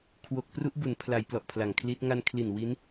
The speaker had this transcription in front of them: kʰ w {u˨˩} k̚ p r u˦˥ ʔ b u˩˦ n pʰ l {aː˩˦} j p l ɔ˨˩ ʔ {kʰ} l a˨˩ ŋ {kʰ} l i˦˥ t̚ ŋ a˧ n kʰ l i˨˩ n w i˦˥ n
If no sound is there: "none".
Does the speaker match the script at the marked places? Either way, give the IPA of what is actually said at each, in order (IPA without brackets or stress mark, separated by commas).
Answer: o˨˩, a˩˦, pʰ, kʰ